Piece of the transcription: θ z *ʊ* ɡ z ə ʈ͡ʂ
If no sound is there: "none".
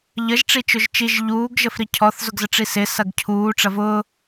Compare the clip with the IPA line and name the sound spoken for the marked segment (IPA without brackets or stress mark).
ʊ